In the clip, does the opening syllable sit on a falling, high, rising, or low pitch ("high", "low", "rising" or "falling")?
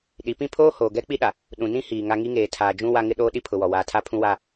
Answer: rising